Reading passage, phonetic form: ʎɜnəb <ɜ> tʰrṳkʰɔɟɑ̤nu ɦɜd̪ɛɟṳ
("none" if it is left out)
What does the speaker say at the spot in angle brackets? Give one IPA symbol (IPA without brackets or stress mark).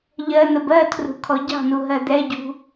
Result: ɜ